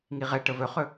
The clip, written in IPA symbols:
ŋ i ʁ ɛ ʈ ə v ɵ χ ɵ

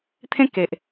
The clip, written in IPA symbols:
t̪ʰ ẽ˦ k e˨ ʔ

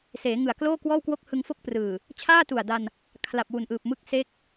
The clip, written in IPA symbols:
s eː˩˦ ŋ ɯ˨˩ a̯ k l oː˥˩ k w ɔː˥˩ w k w o˥˩ k̚ h ɯ˧ ŋ f o˥˩ k̚ p r ɯː˨˩ | t͡ɕʰ aː˥˩ t u˨˩ a̯ d a˧ n | kʰ l a˨˩ p̚ w u˨˩ n ʔ ɯː˨˩ p̚ m ɯ˦˥ k̚ s e˦˥ k̚

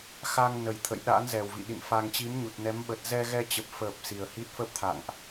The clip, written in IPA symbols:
x a˧ ŋ n ə˨˩ j t̪ʰ ə̰˧˨ j ɗ a̰˧˥ n z ɛ˨˩ w v ḭ˧˨ ɗ ḭ˧˨ n f a˧ ŋ t͡ɕ i˨˦ m ɲ u˨˩ t̚ n ɛ˨˦ m ɓ ə˨˩ t̚ z ɛ˧ ɣ ɛ˧ t͡ɕ ə˨˩ p̚ f əː˨˩ p̚ s i˨˩ ə̯ h i˦˥ t̚ f ə˦˥ p̚ t̪ʰ a̰˧˨ ŋ ʔ

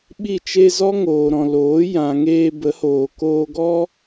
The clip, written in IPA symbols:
ɓ i˦˨ t͡ʃ e˧ z ɔ˦ ŋ oː˨ ɾ ɔ̃˨ l oː˨˦ j ã˨ ŋ eː˧ b ə˨˦ h oː˨ k oː˧ ɡ ɔ˦

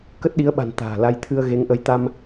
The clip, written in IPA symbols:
k ə˦˥ t̚ ɗ i˨˦ ə̯ ɓ a̤˨˩ n t̪ a̤ː˨˩ l a˧ j t̪ʰ ɨ˧ ə̯ ɣ e˨˦ ŋ ʔ ə˨˦ j t̪ a˧ m

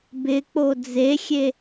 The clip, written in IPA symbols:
b ɪ k͡p o d͡z e xʲ e

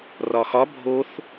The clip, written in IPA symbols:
r ɒ x ɒ bʱ o θ

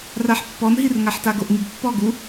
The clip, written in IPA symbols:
r a ħ pː ɔ n ɦ i r ŋ a ħ t a ɡ o ʔ ŋ i ɡ pː ɔ ɡ u

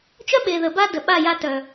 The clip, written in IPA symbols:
t͡ʃ œ˦ ɓ e˨ ð ə˨ b a˦ d ə˨ ɓ a˦˨ j a˦ t œ˨

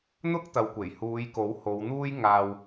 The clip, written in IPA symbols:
n̪ ʊ˥ k̚ t̪ ɐ˨ w kʷ e˨˩ j h uː˨˧ j k o˨˥ w h o˨˧ w n̪ uː˥ j ŋ aː˧ w

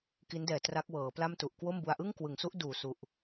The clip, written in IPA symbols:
k i˦˥ n d ɛː˨˩ t r a˦˥ k̚ w ɤː˩˦ p l a˥˩ m t u˨˩ ʔ k w o˥˩ m b u˧ a̯ ʔ ɯ˥˩ ŋ k w ɯ˩˦ ŋ s u˦˥ ʔ d uː˨˩ s u˨˩ ʔ

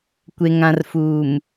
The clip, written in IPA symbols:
kʷ e˨ ŋ ã˨ r f uː˨ m

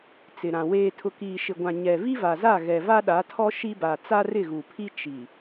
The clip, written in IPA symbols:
t͡s ɪ˨ ɾ ã˨ w eː˨ tʰ ʊ˨ k iː˨ ʃ ɪ˨ ɡʷ ã˨ ɲ ɛ˨ v i˦ v a˨ z a˦˨ ɣ ɛ˨ v a˦ ɗ a˨˦ tʰ ɔ˦ ʃ i˦ b a˨ t͡s a˦ r ɪ˦˨ ɣ u˨ pʰ i˦ t͡ʃ i˨

